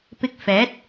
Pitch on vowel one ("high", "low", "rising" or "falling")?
low